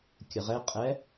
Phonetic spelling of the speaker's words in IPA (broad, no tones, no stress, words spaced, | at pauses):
kʲəʁɛ qʼɛ